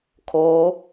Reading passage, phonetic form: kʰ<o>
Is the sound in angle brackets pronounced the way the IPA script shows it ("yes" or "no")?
no